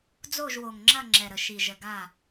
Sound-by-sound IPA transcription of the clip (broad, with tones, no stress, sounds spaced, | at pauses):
d͡z o˦˨ ʒ w o˨ ŋ ŋ͡ǁ ɐ˦˨ ŋ͡ǁ ɛ˨ ɾ ə˨ ʃ i˨ ʒ ə˨ ɡ a˦˨